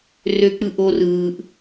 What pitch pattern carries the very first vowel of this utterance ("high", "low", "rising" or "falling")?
low